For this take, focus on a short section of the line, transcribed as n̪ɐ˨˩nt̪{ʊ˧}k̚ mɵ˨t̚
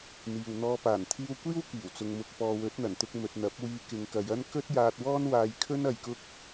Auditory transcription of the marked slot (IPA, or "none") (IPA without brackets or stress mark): ʊ˧